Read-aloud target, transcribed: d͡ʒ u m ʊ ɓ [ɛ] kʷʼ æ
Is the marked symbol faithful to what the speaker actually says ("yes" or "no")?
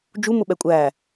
yes